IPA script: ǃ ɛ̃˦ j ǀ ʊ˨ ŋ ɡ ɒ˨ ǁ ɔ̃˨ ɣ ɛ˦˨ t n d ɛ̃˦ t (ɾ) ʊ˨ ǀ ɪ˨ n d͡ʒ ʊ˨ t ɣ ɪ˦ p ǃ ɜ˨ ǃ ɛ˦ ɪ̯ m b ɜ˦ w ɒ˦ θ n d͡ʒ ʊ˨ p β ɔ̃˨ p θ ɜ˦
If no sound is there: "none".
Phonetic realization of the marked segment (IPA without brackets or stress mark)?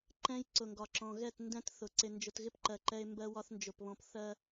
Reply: θ